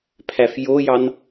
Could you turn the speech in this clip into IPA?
pʰæfjojɑn

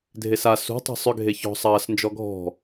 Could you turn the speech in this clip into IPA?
dʱesa sṳ tˤe̤sˤʏ ɡʱeçɔ̤ sˤɐːs nd͡ʒɔɡʱɔ̤

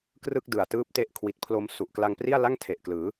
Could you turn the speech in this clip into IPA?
krɯ˥˩k̚dɯ˨˩a̯ tɯː˦˥p̚te˦˥ʔ kʰwi˨˩t̚pʰlo˧m su˨˩ʔkla˧ŋpri˥˩a̯la˥˩ŋ tʰe˨˩ʔklɯː˩˦

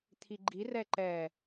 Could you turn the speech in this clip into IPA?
t̪ʰiɡ͡ǃirɛ ǃɛ

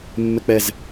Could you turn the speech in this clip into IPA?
mːɛk͡pɛz

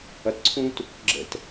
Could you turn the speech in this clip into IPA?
ʌtǀʰũt | ɡ͡ǁə̰t

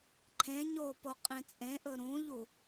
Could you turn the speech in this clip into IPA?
ǃʰẽɲo poqʼẽt͡sʼẽʔɵ ɾũʎu

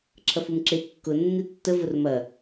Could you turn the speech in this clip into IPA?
ǁʰɐfumǁe kːʊ nːitːə vʊrmɐ

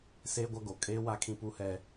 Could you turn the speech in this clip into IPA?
seː˦ɡʷa˦ ɡo˨ kʼeː˦ wa˦kʰĩ˦pu˦hɛ˦

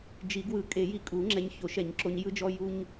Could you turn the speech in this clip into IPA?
d͡ʒi˨˩˦ɡwɯ˨˩˦ kʼe˨˩˦ji˧kʼu˨˩˦ ŋ͡ǁɛ˧ɲço˨˩˦ʃɛ˨˩˦ɲǁo˧ɲ jɯ˧d͡ʒɔ˧ ju˧ɲ

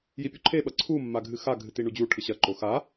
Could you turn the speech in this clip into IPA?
jipʲuǃʰeɓɐ ǀʰumːa ɡʱɨxaɡʱɨ tiɳud͡ʑuʈʰɨ ɕɐǃo xa

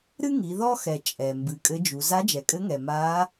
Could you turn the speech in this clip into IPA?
ɾɨ˥ŋi˩˧ ðɔ˥xɛ˩ t͡ʃʼɛ˩ mbɨ˩˧kʼɘ˧˥d͡ʒu˩˧ za˧˥d͡ʒɛ˩kʼɘ˧˥ŋɛ˩ ma˧˥

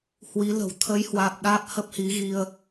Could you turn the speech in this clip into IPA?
hwi˨˦lə̤˨˩w t̪ʰə˨˦jhwaː˨˩p̚ ɗaː˦˥p̚hə˦˥p̚hi˨˦ɣi˧ə̯

